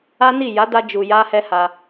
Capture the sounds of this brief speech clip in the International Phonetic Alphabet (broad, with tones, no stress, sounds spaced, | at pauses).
a˦ n i˦˨ j a˨˦ d a˧ d͡ʒ u˨ j a˧ h ɛ˦ h a˧